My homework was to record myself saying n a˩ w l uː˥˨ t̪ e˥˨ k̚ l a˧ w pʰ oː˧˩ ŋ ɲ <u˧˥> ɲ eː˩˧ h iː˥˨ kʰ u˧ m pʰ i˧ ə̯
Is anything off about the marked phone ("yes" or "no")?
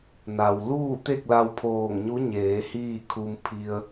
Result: no